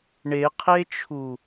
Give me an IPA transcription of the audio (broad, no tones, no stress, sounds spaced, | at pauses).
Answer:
ɳ e qʰ e t͡ʃʰ u